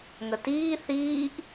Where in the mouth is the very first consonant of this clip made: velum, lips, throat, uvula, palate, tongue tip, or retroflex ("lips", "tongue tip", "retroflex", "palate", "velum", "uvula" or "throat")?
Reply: velum